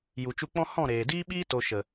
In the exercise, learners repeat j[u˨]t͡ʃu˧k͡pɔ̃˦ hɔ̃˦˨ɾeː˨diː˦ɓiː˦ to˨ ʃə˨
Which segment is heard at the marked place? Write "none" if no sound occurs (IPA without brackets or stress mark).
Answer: u˨